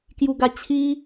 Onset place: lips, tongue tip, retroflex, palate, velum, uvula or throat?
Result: velum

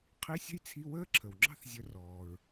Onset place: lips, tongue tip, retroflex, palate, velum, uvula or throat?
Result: uvula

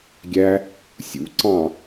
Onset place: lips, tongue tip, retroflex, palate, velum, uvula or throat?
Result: velum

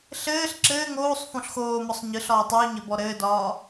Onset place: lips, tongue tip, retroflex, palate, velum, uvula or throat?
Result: tongue tip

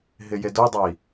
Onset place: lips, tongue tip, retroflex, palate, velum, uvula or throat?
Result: throat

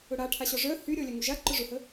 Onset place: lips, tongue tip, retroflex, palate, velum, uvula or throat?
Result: retroflex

